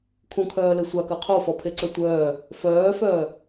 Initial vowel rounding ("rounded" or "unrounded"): rounded